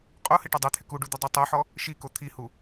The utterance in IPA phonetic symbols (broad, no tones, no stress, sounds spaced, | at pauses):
qʼ o h ɪ ʈ ɛ dˤ e t̪ʰ ɪ k u ɖ u d̪ ʊ dˤ i tˤ u ħ ɔ | ʃ i k o t̪ʰ i h u